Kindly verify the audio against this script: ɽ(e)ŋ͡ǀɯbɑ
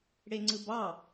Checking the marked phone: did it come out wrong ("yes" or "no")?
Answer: no